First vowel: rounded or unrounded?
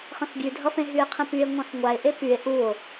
unrounded